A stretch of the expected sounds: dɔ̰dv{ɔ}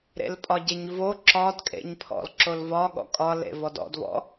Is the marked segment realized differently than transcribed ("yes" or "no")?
yes